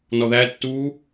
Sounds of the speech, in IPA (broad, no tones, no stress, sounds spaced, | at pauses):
n ɔ ð æ tː uː